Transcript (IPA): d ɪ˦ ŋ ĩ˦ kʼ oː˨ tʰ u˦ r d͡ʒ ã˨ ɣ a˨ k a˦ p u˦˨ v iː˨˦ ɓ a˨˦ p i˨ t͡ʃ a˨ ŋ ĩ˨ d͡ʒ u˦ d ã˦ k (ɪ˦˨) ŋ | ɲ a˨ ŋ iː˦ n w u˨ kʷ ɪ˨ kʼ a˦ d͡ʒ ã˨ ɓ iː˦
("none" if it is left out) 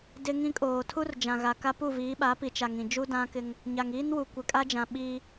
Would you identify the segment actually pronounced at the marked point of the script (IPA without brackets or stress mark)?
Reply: ɪ˦